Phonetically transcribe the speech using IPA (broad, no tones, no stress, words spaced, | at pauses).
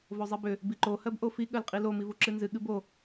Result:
vozˤibʏ | biǃo hɜbʔofi ɠɜlqʼilo mivuǁɨnzɨ ɠɨbo